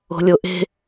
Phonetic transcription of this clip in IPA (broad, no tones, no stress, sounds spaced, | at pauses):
o̤ lʲ o ʔ e̤